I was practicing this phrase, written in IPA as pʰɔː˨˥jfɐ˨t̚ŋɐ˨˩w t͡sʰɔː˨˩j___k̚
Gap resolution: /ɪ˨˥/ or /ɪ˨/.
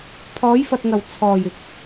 ɪ˨˥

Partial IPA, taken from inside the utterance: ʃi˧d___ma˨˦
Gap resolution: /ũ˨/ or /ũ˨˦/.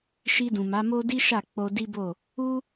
ũ˨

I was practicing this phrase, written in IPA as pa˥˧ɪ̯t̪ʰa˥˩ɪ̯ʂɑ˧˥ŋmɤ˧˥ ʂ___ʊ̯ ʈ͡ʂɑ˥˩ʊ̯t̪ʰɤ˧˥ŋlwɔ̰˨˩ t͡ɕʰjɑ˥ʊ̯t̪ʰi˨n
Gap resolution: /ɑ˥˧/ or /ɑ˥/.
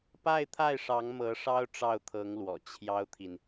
ɑ˥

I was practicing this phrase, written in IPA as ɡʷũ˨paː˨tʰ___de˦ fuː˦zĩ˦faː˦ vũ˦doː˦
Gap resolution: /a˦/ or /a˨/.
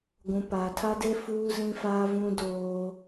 a˦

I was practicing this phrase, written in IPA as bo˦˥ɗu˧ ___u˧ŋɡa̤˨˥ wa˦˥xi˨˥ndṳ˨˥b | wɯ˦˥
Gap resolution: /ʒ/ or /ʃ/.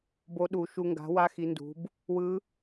ʃ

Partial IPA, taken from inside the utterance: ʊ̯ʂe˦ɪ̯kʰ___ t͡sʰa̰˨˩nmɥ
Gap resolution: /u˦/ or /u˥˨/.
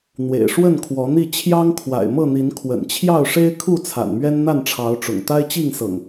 u˥˨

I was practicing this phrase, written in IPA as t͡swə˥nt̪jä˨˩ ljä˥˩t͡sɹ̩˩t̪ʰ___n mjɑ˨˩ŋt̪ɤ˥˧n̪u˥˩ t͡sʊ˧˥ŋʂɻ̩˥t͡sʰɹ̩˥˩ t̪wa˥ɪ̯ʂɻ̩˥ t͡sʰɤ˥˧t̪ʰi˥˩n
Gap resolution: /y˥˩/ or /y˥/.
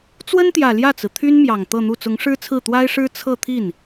y˥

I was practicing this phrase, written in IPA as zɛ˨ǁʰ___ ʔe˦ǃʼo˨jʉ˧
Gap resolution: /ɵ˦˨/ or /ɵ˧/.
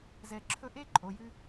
ɵ˧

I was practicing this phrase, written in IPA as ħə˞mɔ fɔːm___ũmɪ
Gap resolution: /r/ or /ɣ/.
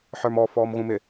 ɣ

